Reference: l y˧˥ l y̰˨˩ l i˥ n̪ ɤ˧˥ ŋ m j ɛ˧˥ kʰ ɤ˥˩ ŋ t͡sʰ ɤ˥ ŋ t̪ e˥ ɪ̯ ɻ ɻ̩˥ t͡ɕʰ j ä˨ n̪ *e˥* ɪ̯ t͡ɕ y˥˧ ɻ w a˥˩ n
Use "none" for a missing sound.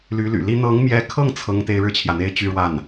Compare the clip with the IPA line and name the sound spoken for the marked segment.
e˥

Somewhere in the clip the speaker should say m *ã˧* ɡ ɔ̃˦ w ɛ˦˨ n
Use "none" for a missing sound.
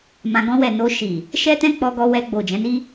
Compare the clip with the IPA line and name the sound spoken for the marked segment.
ã˧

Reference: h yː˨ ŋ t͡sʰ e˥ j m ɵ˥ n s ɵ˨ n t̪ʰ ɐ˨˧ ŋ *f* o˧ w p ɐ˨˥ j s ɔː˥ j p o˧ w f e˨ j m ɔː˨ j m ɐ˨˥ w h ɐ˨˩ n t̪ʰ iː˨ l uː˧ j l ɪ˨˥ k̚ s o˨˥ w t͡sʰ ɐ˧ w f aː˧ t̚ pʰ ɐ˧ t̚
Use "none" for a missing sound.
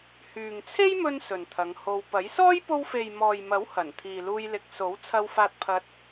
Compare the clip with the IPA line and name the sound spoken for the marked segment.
h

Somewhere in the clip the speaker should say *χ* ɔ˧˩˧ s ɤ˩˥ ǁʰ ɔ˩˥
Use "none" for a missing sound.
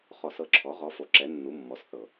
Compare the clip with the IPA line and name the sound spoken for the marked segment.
χ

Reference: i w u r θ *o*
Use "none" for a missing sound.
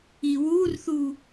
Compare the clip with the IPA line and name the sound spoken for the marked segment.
u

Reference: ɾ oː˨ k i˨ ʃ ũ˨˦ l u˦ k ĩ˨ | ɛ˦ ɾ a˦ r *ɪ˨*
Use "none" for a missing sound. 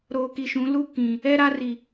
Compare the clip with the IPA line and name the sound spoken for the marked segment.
i˨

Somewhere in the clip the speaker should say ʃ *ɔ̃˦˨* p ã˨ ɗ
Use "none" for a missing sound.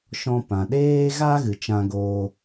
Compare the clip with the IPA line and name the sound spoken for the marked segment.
ɔ̃˧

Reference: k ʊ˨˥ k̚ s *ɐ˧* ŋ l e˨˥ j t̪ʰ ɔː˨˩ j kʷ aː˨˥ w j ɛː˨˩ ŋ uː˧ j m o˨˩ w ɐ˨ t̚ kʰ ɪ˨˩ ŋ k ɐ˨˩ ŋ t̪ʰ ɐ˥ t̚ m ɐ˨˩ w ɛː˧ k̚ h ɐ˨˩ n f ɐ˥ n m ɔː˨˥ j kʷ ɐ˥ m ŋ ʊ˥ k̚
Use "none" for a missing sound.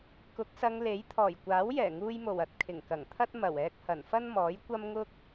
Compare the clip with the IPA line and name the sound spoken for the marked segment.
ɐ˧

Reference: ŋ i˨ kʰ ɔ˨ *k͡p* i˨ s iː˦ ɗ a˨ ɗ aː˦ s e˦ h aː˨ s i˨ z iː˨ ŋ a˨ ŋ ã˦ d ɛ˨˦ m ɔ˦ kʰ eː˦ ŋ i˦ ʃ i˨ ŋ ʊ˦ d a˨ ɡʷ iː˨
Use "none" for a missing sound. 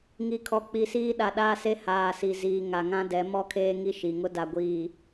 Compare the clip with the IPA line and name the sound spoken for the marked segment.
k͡p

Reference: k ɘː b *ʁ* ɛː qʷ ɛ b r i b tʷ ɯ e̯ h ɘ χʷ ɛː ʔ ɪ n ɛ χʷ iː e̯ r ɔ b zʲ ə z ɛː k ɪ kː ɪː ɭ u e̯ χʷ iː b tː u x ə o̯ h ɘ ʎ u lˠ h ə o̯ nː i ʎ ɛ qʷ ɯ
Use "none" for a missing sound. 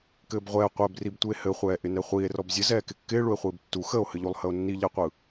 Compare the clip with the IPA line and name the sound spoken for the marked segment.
ʁʷ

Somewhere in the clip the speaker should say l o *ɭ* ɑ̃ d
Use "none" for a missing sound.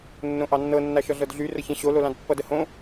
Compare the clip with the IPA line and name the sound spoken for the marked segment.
l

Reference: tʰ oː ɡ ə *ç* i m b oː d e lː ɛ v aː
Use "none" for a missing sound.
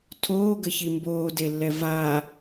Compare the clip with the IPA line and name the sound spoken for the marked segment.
ç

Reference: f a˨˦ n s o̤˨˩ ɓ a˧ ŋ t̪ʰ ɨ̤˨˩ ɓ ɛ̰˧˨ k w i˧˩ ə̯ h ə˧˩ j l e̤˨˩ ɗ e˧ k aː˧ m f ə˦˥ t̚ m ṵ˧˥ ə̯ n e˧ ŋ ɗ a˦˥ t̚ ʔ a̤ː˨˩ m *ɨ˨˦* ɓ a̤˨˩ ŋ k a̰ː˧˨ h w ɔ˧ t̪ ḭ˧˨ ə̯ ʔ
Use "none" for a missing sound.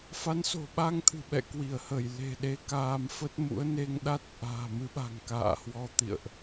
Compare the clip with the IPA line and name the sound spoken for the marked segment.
ɨ˨˦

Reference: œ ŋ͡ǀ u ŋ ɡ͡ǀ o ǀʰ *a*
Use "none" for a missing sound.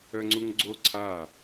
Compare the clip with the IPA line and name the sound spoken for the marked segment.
a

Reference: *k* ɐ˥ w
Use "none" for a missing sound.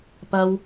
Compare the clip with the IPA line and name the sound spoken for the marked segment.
p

